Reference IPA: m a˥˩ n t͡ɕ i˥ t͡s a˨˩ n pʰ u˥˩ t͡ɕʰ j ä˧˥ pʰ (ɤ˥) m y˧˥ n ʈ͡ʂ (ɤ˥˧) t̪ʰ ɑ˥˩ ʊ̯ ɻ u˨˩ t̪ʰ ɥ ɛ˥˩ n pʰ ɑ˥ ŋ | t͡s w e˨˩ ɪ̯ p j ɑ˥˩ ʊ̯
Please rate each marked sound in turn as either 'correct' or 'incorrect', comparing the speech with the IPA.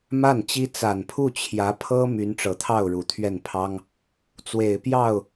correct, incorrect: ɤ˨˩

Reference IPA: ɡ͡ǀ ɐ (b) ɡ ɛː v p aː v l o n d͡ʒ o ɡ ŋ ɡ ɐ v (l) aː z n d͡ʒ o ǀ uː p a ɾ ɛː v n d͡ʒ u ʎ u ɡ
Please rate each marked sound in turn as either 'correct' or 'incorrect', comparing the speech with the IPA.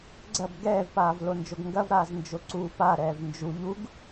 correct, incorrect: ɾ

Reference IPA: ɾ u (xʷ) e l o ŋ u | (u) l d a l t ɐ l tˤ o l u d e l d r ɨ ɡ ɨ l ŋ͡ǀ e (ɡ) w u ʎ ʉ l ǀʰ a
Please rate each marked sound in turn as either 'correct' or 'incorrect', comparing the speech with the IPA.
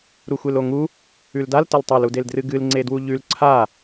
correct, incorrect: ʉ, incorrect: d

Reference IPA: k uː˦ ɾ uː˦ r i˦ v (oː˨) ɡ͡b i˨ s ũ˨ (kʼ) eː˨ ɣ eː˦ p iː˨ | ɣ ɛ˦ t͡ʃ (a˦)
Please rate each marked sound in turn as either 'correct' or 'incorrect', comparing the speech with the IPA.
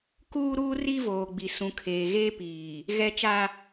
correct, incorrect: kʰ, correct

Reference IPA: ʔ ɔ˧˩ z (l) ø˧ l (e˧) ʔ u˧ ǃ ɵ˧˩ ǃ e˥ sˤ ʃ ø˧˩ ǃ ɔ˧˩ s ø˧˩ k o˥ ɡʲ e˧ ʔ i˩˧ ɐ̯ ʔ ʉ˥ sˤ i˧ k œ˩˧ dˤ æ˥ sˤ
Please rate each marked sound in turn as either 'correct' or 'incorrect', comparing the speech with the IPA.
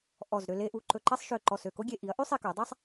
incorrect: ɾ, correct

